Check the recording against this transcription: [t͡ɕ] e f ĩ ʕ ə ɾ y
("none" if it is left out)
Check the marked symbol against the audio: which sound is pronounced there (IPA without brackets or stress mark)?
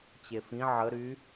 t͡ɕ